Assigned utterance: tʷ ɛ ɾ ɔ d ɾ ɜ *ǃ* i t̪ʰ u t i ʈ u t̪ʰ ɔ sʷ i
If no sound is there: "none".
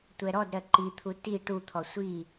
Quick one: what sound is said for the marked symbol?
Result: ǃ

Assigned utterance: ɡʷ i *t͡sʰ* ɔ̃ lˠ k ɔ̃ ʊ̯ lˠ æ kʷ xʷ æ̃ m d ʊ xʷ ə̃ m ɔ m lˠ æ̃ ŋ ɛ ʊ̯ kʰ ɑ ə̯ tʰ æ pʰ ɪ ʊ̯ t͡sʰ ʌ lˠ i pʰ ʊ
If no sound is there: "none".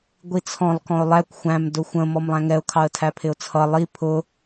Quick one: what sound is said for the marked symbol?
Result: t͡sʰ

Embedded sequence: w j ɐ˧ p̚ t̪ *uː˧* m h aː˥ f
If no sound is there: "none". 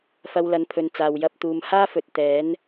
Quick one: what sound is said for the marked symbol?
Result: uː˨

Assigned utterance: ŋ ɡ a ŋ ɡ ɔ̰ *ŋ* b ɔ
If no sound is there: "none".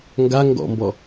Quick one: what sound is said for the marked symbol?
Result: m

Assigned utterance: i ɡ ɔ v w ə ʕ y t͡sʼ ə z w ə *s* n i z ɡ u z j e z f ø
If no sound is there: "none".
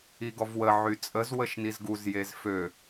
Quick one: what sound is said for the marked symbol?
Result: ʃ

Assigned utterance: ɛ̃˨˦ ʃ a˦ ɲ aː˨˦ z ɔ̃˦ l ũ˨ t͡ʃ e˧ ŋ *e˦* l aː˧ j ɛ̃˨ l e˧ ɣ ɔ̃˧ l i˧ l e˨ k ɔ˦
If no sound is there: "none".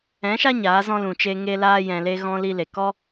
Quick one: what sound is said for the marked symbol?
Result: e˦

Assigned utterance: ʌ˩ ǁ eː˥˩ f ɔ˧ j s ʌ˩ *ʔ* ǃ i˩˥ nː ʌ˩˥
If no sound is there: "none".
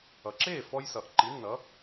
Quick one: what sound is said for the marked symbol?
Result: ʔ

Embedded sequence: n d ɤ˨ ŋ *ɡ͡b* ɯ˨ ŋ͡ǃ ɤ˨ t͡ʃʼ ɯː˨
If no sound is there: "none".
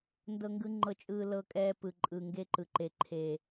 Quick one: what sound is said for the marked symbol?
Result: ɡ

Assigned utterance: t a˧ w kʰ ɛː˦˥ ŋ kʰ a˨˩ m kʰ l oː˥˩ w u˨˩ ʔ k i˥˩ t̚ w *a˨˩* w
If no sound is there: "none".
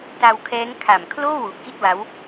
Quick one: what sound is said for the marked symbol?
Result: a˦˥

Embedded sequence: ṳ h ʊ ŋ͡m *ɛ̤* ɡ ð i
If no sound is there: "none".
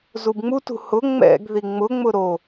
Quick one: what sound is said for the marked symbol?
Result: ɛ̰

